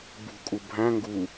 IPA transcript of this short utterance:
b ṳ kʼ u bʱ æ̃ ŋ ɡ u

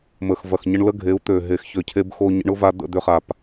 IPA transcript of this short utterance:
m ə˨ x v ɐ˨ x ɲ ə˧ ɳ l ə˦ ɡʱ e˨˦ u̯ t̪ ø˨ ɦ e˨ x ç ø˨ cʰ e˧ b x o˧ ɲ ə̰˧ ɳ ʊ˦ v a˧ d̪ ə̰˦˨ d̪ ʏ˧ χ a˨ p

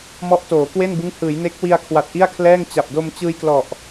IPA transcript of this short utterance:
m ɔ˦˥ ʔ t oː˩˦ k w e˥˩ n b ɯ˦˥ ŋ h ɯː˩˦ j n e˦˥ k̚ w i˧ a̯ kʰ w a˨˩ t̚ ʔ i˥˩ a̯ kʰ l ɛː˥˩ ŋ t͡ɕ a˨˩ p̚ d o˧ m t͡ɕ ɯː˧ j k l ɔ˨˩ ʔ

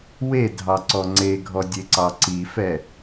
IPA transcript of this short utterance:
w e dʱ ɑ ǀ ɔ ŋ͡ǀ e ɡʱ ɔ dʲ e ǀ ɑ ǀ i f ɛ

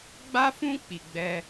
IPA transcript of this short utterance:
ɡ͡b a˦ f ũ˦ k͡p i˧ ɡ͡b ɛ˦

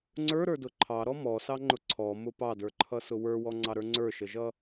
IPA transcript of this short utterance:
ŋ͡ǀ ə˞ ɾ ə˞ d ʊ ǃʰ ɑ ɾ ɔ m ɔ s ɑ ŋ͡ǃ ʊ ǀʰ ɔ m ʊ p ɑ d ə˞ ǃʰ ʌ s ʊ w ə˞ w ɔ ŋ͡ǀ ɑ ɾ ə˞ ŋ͡ǀ ə˞ ʃ ə ʒ ʌ

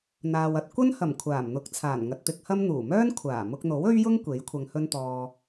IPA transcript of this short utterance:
n̪ aː˨ w ɐ˧ t̚ kʷ ɐ˥ n h ɐ˨˩ m kʷʰ aː˨˩ m n̪ ʊ˨˥ k̚ t͡sʰ aː˨˩ n ŋ ɐ˨ t̚ t̪ ɪ˧ k̚ h ɐ˥ m n̪ uː˨˩ m œː˥ n kʷʰ aː˨˩ m ʊ˧ k̚ n̪ o˨˥ w ɵ˥ ɥ j ʊ˥ ŋ kʷ e˨˥ j kʷʰ ɐ˧ ŋ h ɵ˥ n t̪ ɔː˧

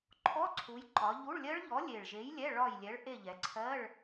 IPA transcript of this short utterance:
ǃʰ ɔ˧˥˧ ǀʰ u˩˧ j ǃ ɒ˩˧ ʎ u˧˥˧ ɭ lʲ ɜ˦˥ ɭ ʎ ɔ˨˥ lʲ e˨˩ ɭ ʒ e˨˥ j lʲ ɛ˧˥˧ ɭ ɒ˦˨ j lʲ ɛ˨˥ ɭ ʔ e˦˨ ʎ ɛ˩˧ ǀʰ ɜ˧˥˧ ɭ

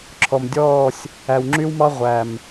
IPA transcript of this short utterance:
ǁʰ ɔ˨ m dʲ ɔː˦˨ sʲ | æ˨ w ŋ͡ǁ y˦ w m ɑ˦ ʁʷ æ˨ m

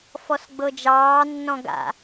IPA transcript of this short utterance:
f ɔ s ɡ͡b ɤ d͡ʒ ɑː nː ɔ̃ ɡ a̰

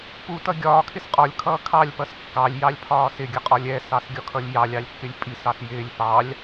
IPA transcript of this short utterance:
p u t ʌ ɡʲ ɒː kʰ ɪ s qʼ ɒ lʲ kʰ ʌː kʰ ɑ lʲ p ʌ s kː ɑ lʲ j ɑ lʲ pʰ ɒː s ɪ ɡʲ ʌ qʼ ɒ lʲ ɛ s ɑ s ɡʲ ɒ kʰ ʌ lʲ j ɑ lʲ ɑ lʲ kː ɪ lʲ pʼ i s ɑ s j ɪː lʲ p ɑ lʲ

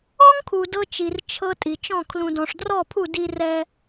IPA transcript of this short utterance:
ɔ˦ ŋ kʰ u˨ d ɤ˦ t͡ʃ i˨ r t͡ʃʰ ɤ˦ tʼ i˨ t͡ʃ ɔ̃˦˨ kʰ l ũ˨ d ɔ̃˨ ʂ d r ɔ˦˨ pʰ u˦˨ d i˦ r ɛ˦

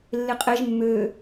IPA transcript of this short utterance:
lː e qʼ ɛ ʒ mː ø

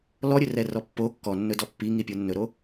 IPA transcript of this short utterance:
l ɔ ɾʲ ɵ r ɛ r ɔ pː o kː ɔ nː ɵ d ɔ pː i ŋ i pʲ o nː ɵ ɾ o

